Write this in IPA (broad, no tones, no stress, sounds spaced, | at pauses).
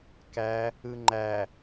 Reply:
k æ | ɯ ŋ͡ǃ æ